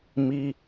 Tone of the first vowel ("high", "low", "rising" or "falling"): low